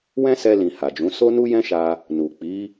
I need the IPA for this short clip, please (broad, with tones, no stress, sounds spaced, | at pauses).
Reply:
w ɛ̃˦ s ɛ˧ l ĩ˨ h a˨ d͡ʒ ũ˨˦ s o˦ n u˦ j ɛ̃˦ ʃ a˧ | n u˨ k͡p i˨˦